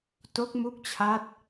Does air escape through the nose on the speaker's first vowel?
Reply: no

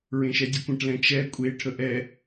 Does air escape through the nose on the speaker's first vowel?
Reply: yes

